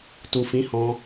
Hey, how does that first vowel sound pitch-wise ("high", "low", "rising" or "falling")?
low